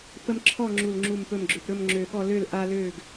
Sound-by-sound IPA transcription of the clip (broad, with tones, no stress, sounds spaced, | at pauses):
p ə˦ m ǁʰ ɔ˥˨ ŋ͡ǁ u˧˩ l ŋ͡ǁ u˧˩ m p ɵ˧˩ m ɡ͡ǁ ʏ˧˩ p ɾ ɵ˥˨ m ŋ͡ǁ ø˧˩ ɠ ɔ˥˨ l ø˥˨ l ʔ a˦ l ø˥˨ ɡ